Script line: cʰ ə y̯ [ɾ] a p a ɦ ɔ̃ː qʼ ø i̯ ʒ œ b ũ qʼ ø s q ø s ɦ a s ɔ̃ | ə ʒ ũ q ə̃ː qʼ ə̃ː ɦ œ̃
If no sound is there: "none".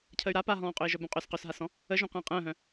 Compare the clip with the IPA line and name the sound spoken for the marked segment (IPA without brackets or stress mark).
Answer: ɾ